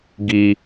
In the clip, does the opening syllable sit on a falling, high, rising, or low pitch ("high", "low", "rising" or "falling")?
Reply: high